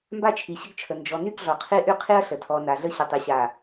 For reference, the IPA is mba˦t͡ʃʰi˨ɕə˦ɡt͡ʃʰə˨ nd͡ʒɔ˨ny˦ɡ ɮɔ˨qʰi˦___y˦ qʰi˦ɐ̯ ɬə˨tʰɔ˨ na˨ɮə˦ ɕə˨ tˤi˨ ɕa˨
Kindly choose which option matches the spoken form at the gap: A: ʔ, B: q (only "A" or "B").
A